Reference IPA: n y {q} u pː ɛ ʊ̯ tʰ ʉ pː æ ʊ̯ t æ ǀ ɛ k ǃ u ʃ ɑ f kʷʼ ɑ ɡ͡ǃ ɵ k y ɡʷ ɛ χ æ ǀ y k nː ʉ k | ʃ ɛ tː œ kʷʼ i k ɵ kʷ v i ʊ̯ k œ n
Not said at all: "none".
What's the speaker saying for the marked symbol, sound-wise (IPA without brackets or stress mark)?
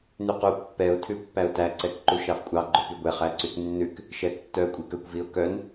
q